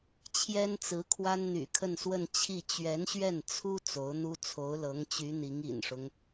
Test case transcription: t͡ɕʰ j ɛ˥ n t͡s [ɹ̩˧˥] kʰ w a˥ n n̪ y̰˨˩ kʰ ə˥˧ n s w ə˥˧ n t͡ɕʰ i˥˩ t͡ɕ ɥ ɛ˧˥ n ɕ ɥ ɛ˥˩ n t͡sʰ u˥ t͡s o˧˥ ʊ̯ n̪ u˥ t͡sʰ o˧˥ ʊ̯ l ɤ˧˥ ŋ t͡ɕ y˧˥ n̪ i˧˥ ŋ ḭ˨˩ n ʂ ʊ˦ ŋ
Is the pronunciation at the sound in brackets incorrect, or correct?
correct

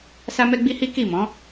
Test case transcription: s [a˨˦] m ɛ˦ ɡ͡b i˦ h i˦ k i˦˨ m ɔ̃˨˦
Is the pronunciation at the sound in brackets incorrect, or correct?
incorrect: a˦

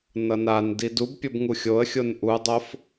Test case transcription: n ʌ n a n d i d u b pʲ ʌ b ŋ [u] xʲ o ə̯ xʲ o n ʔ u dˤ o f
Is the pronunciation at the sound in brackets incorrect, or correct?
correct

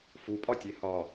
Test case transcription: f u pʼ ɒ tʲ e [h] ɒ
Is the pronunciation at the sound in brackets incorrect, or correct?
correct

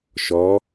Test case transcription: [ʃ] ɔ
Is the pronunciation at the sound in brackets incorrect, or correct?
correct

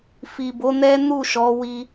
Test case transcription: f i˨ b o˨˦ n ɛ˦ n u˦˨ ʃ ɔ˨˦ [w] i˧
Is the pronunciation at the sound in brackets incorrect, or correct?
correct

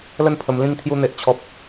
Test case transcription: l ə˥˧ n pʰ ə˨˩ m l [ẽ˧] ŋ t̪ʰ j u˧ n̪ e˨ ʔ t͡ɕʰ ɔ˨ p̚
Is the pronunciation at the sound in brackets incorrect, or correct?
incorrect: ĩ˧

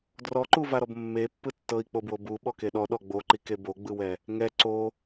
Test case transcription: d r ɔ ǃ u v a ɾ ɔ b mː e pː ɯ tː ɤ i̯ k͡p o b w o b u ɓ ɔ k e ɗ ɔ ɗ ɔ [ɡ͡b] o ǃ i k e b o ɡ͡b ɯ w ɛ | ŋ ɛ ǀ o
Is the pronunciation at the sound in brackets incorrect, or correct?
correct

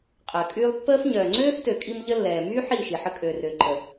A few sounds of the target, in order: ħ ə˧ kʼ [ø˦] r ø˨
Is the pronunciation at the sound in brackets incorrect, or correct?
incorrect: ø˨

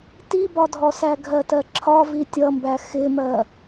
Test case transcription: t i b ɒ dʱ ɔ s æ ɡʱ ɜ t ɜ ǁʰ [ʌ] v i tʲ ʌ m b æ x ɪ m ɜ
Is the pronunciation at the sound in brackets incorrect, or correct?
incorrect: ɒ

